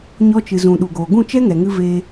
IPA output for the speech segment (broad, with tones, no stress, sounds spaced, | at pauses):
ɲ ɔ˧ t͡ʃ ɨ˨ z ũ˨ ɗ u˨ ɡ oː˨ ɡ ũ˦˨ t͡ʃ ɛ˦ ŋ ɛ˨ ŋ ɨ˧ v eː˧